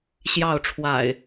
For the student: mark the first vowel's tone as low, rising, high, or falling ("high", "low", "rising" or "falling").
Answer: falling